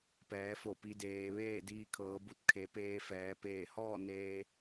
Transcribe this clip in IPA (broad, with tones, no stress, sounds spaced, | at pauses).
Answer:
p ɛː˩˧ f o˧˩ p i˩˧ d eː˩ ʋ eː˥˨ d iː˧ kʰ ɤː˩˧ b u˧ t̚ kʰ e˩˧ p eː˧ f ɛː˩˧ p eː˧˩ h ɔː˥˨ n eː˧